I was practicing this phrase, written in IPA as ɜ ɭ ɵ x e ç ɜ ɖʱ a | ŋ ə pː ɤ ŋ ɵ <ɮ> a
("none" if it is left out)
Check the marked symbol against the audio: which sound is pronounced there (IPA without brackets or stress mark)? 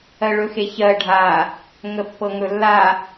lː